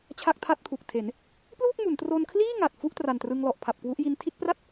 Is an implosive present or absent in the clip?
absent